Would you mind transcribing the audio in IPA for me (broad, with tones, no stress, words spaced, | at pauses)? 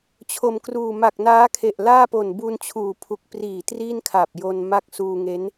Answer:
t͡ɕʰo˨˩mkruː˨˩ ma˨˩k̚naː˦˥kʰe˨˩ʔ laː˥˩po˨˩n bu˧nt͡ɕʰuː˨˩pʰu˨˩k̚ priː˨˩ triː˥˩nkʰa˨˩p̚jo˧n ma˥˩k̚ suː˧ŋe˦˥n